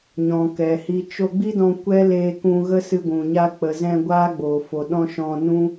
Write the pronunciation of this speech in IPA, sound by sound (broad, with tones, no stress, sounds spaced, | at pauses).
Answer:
ɲ ɔ̃˨ k ɛ˨ h i˧ t͡ʃ o˧ ɡ͡b i˦ d ɔ̃˧ kʷ ɛ˦ l eː˧ k ũ˧ ɣ ə˦ s ɨ˧ ɡʷ ũ˨ ɲ a˧ k͡p ə˨ z ɛ̃˧ ɡʷ aː˦ ɡ͡b oː˨ f o˨ ɗ ɔ̃˦ ʃ ɔ̃˧ n ũ˦